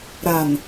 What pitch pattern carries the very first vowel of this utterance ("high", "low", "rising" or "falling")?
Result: low